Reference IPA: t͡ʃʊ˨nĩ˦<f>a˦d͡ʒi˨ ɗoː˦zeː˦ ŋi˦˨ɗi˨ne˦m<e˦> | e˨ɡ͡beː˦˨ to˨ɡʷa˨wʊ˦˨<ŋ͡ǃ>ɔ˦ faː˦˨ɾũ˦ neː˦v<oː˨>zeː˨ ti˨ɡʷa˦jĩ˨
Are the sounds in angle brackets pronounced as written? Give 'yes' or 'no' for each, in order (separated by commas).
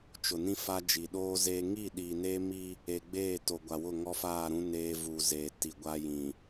yes, no, no, no